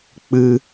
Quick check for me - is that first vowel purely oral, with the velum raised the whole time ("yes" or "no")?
yes